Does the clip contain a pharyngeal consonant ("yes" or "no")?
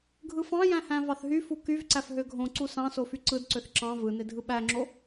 no